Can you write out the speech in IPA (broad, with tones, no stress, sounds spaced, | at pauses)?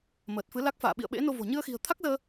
m əː˨˩ t̚ f ɨ˨˦ l a˦˥ k̚ f a̰ː˧˨ ɓ ḭ˧˨ ə̯ ɓ ḛ˧˥ n o˧ v o̤˨˩ ɲ ɨ˧ ə̯ x i̤˨˩ ə̯ t̪ʰ a˦˥ k̚ z əː˧